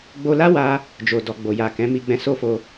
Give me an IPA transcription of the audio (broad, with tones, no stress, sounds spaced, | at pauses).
ɡ͡b o˧ l a˦ w a˧ | d͡ʒ o˨ d ɔ˨ ɡ͡b o˨ j a˨ k ɛ̃˨˦ m i˧ ɡ͡b ɛ̃˧ s o˦ f o˧